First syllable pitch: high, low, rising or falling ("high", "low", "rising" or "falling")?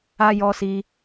high